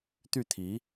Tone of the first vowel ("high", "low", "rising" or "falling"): falling